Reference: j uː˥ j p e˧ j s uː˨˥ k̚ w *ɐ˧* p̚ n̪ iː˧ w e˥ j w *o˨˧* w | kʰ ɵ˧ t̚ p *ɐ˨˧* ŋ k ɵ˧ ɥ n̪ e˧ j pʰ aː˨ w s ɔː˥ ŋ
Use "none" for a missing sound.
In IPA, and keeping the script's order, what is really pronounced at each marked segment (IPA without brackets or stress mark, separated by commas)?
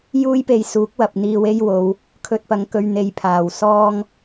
ɐ˨, o˨˧, ɐ˨˧